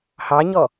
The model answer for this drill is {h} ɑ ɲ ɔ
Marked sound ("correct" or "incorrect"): correct